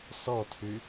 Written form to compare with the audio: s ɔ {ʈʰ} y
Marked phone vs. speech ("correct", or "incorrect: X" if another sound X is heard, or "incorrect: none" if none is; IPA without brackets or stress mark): incorrect: tʰ